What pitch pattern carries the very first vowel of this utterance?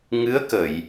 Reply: rising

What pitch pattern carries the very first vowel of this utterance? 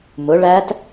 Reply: rising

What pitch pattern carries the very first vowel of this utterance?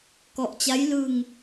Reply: low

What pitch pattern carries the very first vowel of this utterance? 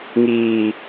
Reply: low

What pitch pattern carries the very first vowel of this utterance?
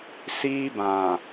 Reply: high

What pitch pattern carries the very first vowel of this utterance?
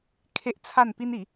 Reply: high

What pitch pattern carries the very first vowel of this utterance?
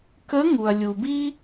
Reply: rising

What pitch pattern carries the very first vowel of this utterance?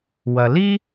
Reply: low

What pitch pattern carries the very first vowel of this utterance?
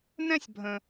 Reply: high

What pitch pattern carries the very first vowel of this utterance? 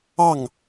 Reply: falling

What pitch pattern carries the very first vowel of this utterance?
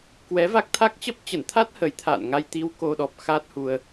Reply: rising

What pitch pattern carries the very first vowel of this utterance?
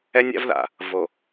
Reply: high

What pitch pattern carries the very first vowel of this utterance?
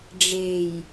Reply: low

